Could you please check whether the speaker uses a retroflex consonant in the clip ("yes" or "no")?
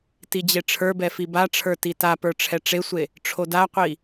yes